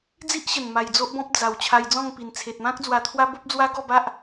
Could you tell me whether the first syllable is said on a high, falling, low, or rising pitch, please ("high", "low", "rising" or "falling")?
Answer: high